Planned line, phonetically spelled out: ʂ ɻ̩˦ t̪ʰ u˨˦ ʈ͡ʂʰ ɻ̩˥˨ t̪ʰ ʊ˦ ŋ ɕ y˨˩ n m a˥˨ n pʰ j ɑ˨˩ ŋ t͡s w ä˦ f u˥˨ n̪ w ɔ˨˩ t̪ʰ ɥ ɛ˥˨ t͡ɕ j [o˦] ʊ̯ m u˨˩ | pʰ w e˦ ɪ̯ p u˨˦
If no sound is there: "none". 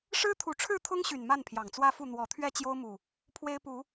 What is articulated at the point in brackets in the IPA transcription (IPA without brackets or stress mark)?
o˦